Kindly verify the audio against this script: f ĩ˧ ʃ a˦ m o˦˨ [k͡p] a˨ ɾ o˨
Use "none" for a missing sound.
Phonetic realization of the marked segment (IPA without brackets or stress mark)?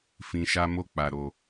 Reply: k͡p